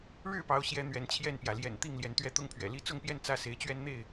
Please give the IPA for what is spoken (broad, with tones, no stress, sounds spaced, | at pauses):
ɻ ɻ̩˥˨ p ɑ˨˦ ʊ̯ ɕ j ɛ˨˦ n̪ ɥ ɛ˨˦ n t͡ɕʰ j ɛ˥˨ n p j ä˩ l j ɛ̰˨˩ n t̪ i˥˨ ŋ l j ɛ˨˦ n t̪ ɥ ɛ˦ t̪ ʊ˥˨ ŋ pʰ ɥ ɛ̰˨˩ l i˦ t͡s ʊ˥˨ ŋ p j ɛ˥˨ n t͡s ä˦ s e˨˦ ɪ̯ t͡ɕ ɥ ɛ˦ n n̪ e˥˨ ɪ̯